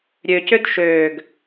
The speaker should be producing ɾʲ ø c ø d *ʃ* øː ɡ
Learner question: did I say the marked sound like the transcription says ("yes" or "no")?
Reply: yes